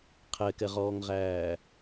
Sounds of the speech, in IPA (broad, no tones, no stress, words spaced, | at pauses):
qʰɛkɛʁɔːŋʁæː